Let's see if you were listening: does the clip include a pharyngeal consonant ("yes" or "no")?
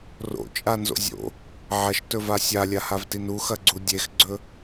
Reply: yes